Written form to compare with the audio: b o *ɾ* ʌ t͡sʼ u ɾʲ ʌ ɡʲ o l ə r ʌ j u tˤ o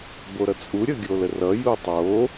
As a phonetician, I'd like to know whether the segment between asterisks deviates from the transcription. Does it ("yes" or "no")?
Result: no